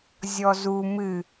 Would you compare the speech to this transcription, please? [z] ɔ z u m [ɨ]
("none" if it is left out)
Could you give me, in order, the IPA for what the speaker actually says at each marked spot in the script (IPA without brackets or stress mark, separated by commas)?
zʲ, ɨ